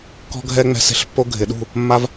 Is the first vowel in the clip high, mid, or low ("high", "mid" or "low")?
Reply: mid